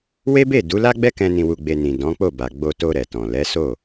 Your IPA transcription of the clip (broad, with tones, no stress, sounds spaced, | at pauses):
w e˦ b e˦˨ d u˨˦ l a˦ ɡ͡b ɛ˦ k ɛ̃˧ n ĩ˧ w u˧ ɡ͡b e˧ n ĩ˨ d ɔ̃˨˦ k͡p o˦˨ b a˨ ɡ͡b o˧ t o˧ ɾ ɛ˨ t ɔ̃˨ l ɛ˨˦ s o˦˨